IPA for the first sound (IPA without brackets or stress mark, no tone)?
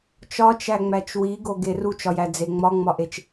t͡ʃ